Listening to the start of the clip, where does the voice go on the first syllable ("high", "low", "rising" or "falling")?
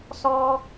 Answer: high